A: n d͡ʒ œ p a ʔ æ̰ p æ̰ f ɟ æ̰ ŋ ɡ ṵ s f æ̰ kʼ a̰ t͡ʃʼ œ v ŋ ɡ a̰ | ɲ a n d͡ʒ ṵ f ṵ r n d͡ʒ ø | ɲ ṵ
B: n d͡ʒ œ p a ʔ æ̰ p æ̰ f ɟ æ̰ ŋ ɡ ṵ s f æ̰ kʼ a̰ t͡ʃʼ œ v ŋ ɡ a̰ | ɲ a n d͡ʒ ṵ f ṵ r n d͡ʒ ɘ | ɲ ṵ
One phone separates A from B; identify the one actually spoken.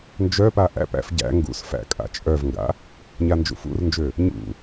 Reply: A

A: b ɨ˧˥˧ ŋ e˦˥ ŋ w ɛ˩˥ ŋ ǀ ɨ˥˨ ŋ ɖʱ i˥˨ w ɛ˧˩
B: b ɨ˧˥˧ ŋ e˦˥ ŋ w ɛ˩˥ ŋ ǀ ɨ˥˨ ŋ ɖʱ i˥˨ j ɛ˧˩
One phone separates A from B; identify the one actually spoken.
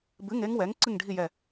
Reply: B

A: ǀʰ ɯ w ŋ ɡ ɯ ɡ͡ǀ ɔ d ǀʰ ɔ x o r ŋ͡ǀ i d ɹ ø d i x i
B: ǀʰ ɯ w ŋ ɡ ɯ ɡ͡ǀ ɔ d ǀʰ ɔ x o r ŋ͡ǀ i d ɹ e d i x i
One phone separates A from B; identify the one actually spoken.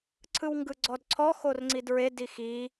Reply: B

